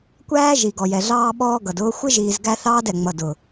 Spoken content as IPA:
kʷ æː˦ ʒ i˨ ɡ ɔ˨ j ɛ˨ ɮ ɑː˦ ɓ ɔː˦ ɡ ʌ˨ d ʊː˦ xʷ ɪ˦ ʒ iː˨ z ɡ æ˦ θ ɑː˦ d ɛ˨ ŋ͡m ʌ˨ d ʊ˨

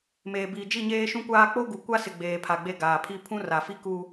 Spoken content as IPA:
m eː˨ b iː˨ d͡ʒ i˦˨ ɲ eː˦ ʃ ũ˦ kʷ aː˦ k͡p o˦ ɡ u˨ kʷ a˦ s ɪ˨ ɡ͡b eː˨ pʰ a˨ ɡ͡b e˦ ɡ aː˨ pʰ i˦ pʰ ũ˦ r a˨ f i˦ k u˦

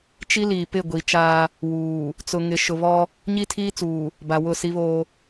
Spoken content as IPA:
t͡ʃ i˦ l iː˨ p ɪ˦˨ ɡʷ i˨ t͡ʃ aː˦ | w uː˨ | t͡s ʊ˨ ŋ ɪ˨ ʃ ʊ˨ β ɔ˦ | ɲ i˦ tʰ iː˦ t͡s uː˨ | b a˨ w ʊ˦˨ s i˦ β oː˦

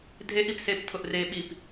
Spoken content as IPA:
dʱ e ʔ i p s e p tʰ ʊ ʔ r e ɓ i p

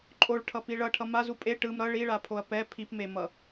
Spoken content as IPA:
ǃʼ o ɭ ʈʰ ʌ p i ɭ ʌ ʈʰ ʌ m a z u pʼ e ʈ ɯ m ɾ ʌ ɭ i ɭ a pʰ o ɐ̯ p ɛ pʰ i p m e m ʌ

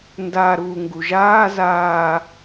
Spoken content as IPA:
n d a ɾ uː ŋ ɡ u ʒ aː z aː

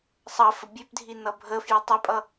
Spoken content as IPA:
sˤ ʌ f ə bʲ ʉ p dʱ i n ʌ bʱ ə f j i tˤ e pʼ ʌ

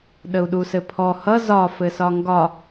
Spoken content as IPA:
ɗ ə u̯ ɗ u s ɘ pʰ ɔ h ʌ z ɒ f ɘ s ɒ ŋ ɡ ɒ

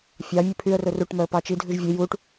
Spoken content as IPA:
fʲ ɑ mʲ ʉ pʰ y ə̯ r ɵ r u ʈ m œ ə̯ p ɑ t͡ʃ i dʱ ʉ ʒ vʲ e j u ʈ

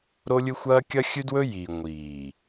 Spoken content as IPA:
ɾ o˦ lʲ ɨ˦ xʷ ɐː˦ kʲ ɐ˦ xʲ ʉ˦ d w ɵ˦ j i˨ ŋʷ iː˨

